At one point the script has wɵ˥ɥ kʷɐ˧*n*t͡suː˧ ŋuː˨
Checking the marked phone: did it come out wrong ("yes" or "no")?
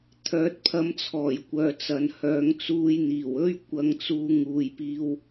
yes